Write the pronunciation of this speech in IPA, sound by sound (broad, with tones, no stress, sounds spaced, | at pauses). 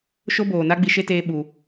ʃ o˦ b oː˨ n a˦ ɡ͡b i˧ ʃ e˦ t eː˧ ɓ u˨